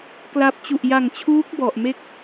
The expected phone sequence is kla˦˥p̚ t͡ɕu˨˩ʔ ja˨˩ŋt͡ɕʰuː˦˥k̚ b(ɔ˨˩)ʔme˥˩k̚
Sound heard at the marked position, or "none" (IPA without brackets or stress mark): ɔ˨˩